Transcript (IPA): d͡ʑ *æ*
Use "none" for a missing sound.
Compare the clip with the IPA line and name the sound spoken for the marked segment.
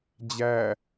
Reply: æ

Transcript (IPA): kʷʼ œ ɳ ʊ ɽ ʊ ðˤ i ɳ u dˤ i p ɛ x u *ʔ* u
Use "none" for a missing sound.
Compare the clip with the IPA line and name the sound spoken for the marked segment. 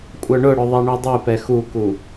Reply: k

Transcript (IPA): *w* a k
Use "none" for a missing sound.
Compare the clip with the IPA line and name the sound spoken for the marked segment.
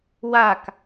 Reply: w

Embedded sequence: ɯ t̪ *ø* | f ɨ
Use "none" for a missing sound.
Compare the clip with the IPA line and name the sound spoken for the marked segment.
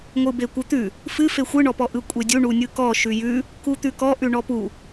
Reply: ʉ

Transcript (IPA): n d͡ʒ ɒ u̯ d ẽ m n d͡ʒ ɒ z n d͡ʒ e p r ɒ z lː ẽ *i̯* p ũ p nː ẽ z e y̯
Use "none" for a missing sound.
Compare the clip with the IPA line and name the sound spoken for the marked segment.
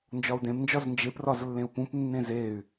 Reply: u̯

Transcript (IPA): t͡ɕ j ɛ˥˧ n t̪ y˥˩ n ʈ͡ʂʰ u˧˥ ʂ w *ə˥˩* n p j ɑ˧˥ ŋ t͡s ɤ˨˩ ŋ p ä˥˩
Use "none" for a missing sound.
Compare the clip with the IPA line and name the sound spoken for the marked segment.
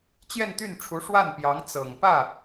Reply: a˥˩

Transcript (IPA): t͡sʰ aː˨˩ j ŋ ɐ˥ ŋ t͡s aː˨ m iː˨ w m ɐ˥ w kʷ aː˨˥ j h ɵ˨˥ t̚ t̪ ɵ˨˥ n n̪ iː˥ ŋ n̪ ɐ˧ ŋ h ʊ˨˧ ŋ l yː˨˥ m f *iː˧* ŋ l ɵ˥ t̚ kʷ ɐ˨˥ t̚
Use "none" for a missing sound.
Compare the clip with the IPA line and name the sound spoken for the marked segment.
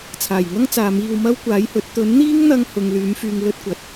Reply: yː˧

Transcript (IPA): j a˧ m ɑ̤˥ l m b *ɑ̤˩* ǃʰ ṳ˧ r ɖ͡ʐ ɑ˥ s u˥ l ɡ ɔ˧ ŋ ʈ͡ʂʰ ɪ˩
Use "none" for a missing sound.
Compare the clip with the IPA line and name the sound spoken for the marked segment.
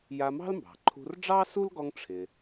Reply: ɑ̤˩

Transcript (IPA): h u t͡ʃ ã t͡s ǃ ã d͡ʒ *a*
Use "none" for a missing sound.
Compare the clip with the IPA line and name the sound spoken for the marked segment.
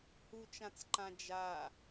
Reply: a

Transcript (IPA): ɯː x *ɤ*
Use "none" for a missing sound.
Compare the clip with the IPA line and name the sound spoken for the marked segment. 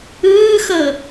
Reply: ɤ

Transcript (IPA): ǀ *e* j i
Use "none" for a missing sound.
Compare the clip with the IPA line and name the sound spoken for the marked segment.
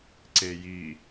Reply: e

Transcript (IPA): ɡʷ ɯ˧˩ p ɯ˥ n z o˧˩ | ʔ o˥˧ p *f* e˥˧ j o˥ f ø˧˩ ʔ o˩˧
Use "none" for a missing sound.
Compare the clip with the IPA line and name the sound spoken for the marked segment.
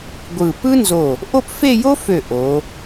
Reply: f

